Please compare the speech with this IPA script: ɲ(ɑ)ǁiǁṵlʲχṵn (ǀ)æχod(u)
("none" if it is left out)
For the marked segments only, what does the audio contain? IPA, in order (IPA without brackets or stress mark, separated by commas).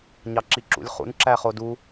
ɑ, ǁ, u